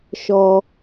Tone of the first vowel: low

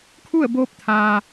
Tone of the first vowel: falling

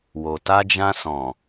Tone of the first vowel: low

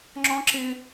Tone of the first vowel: high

